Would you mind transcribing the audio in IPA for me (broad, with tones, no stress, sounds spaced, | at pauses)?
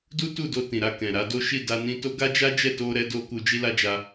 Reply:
d u˦ t u˦˨ d o˧ t ĩ˨ ɾ a˧ k ɛ̃˨ ɾ a˨˦ d o˦ ʃ i˦˨ d a˧ n ĩ˧ t o˦ ɡ a˦ d͡ʒ a˦ d͡ʒ ɛ˦˨ t o˧ ɾ ɛ˧ d o˧ k u˧ d͡ʒ i˦ l a˦ d͡ʒ a˧